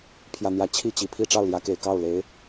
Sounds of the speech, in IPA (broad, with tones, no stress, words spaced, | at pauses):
pʰjä˥˧n̪jä˥˩ t͡ɕʰi˥t͡ɕi˨˩ pʰi˥˧ ʈ͡ʂɑ˥˩ʊ̯ljä˧˥ke˨˩ɪ̯ kɑ˥˩ʊ̯le˧˥ɪ̯